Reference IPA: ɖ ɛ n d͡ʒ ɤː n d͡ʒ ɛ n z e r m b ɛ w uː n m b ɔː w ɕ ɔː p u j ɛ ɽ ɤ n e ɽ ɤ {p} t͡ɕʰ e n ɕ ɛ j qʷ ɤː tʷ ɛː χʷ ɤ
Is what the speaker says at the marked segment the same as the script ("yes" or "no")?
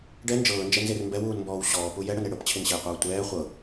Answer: yes